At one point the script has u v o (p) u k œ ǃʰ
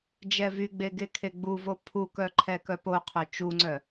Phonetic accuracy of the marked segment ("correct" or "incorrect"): incorrect